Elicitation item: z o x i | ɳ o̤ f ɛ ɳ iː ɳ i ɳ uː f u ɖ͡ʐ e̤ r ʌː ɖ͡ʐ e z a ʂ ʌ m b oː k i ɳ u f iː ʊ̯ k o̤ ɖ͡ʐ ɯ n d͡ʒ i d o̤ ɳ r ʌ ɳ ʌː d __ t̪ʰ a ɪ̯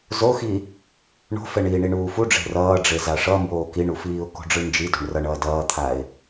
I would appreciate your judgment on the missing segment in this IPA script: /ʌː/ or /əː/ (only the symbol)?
ʌː